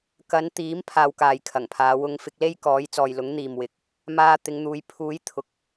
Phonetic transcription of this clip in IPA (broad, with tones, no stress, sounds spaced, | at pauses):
k ɐ˨˧ n t̪ iː˨˥ m pʰ aː˧ w k aː˨ j kʰ ɐ˨˩ ŋ pʰ aː˨˧ w ʊ˧ ŋ f ɪ˧ k̚ l e˥ j k ɔː˨˥ j t͡s ɔː˨ j l ʊ˨˥ ŋ n̪ iː˨ m w ɪ˨˥ k̚ | m aː˧ t̪ ɪ˨˧ ŋ n̪ uː˨˧ j pʰ uː˨˥ j t̪ʰ ʊ˨ k̚